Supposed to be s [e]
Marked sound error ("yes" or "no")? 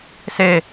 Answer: no